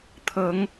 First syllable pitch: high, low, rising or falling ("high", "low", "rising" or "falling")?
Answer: rising